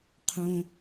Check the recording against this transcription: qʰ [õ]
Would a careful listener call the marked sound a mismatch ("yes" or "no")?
no